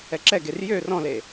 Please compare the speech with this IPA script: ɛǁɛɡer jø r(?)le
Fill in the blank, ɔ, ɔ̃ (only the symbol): ɔ̃